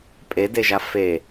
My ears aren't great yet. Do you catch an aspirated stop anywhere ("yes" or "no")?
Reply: no